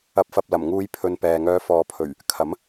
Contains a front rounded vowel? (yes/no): yes